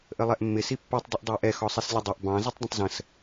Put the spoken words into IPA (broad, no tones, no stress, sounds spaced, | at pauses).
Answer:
ʔ ə lˠ ɛ ʔ mː ɪ s i pː ə˞ tˤ dˤ ɪ ʔ dˤ æ ʔ ɛ x ɔ sˤ i s lʲ ə dˤ ʌ ʔ b ɑ̃ z ʌ tˤ dˤ ə̃ tˤ z ə̃ s